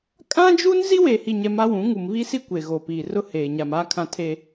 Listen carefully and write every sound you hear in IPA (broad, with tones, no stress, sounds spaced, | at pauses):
kʼ ã˦ d͡ʒ u˦ n z i˦ w eː˨ h i˨ ɲ ɛ˨ m a˦ w ũ˨˦ ŋ u˨ m β i˦ s i˦ kʷ e˨ ɣ o˨ p iː˨ r ʊ˦ h eː˨ ɲ a˨ m aː˦ kʰ ã˦ tʰ e˦